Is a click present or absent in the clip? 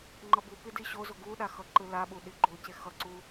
present